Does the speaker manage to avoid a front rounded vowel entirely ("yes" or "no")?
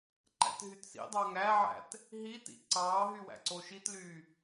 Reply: no